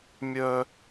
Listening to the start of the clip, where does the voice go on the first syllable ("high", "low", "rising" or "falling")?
high